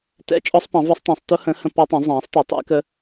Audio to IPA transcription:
t ɛ̰˦˥ t͡ʃʼ ɔ˦˥ sˤ p ɑ̃˨˥ v ɒ˦˥ sˤ tˤ ɑ̃˨˥ sˤ t ʊ˦˥ h ə̃˨˥ h ə̃˦˥ p ɔ˦˥ tˤ ə̃˨˥ zˤ ɑ̃ː˨˥ sˤ t ʌ˨˥ tˤ æ̰˦˥ k ə˦˥

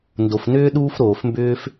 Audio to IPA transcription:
n d o˩ f n ʏː˥ ɗ uː˥ f ɾ oː˩ f m b ʏː˥ f

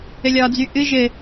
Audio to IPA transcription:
ɘ lʲ ɒ d͡z y ʔ ɨ ʒ ɘ

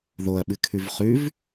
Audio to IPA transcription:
ð o ɐ̯ ɓ ɨ kʰ ʉ v χ ʉ v

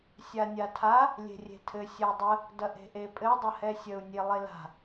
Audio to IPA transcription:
sʲ a nʲ a tʰ a | lʲ e̤ rʲ e̤ tʰ ɘ sʲ ɐ u̯ dˤ ə | d ɐ ʔ e̤ ʔ e pʼ ɘ dˤ ə h ɛ sʲ ə u̯ nʲ e lˠ e l a̤

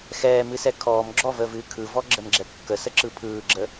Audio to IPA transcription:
x ɛː m ɨ s ɛ kʰ ɔː m ɡ͡ǁ ɔ v əː v ɨː kʰ ɯ v ɔ ɡ͡ǁ ə m ɡ͡ǁ ɛ p kː ə s ə ǁ ɯ pʰ ɯː ɡ͡ǁ ə

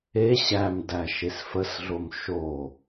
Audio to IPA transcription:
e ɕ æ m d æ ʃ e s f ə s ɮ o m ʃ o

